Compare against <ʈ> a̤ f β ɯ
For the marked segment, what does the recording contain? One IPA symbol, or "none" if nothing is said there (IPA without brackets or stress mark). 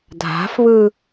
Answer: dʱ